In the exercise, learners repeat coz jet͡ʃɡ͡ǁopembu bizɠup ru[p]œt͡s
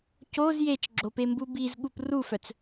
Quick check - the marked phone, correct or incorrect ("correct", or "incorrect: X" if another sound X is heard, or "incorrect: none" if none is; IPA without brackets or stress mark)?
incorrect: f